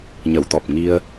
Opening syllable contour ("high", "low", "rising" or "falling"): low